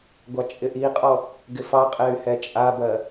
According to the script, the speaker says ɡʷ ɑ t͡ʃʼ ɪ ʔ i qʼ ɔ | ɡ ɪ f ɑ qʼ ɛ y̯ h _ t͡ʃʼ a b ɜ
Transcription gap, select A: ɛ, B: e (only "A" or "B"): A